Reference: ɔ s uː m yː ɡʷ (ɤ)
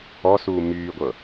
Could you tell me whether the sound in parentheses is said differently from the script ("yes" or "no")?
no